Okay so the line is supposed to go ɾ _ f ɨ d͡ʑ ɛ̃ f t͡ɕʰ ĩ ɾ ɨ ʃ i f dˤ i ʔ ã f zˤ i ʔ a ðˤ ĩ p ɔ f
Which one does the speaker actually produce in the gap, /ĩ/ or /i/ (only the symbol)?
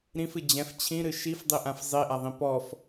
ĩ